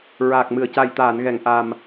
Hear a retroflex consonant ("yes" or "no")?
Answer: no